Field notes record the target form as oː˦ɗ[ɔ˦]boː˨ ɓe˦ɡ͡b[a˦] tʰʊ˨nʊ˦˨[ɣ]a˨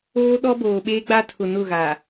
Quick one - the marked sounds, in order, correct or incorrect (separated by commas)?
correct, correct, correct